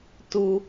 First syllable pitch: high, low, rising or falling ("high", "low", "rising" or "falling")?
high